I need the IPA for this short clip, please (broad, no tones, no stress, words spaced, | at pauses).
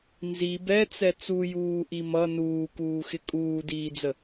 nzi bɛt͡sɛ t͡sujuːʔi mʌ nuːkuːxɪ kʼuːdiːd͡zə